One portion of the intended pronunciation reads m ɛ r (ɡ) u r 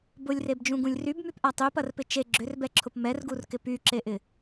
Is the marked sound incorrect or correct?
correct